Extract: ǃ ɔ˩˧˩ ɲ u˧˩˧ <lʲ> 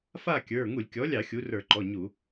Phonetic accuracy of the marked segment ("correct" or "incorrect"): incorrect